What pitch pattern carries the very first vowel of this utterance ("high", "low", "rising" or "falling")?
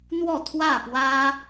falling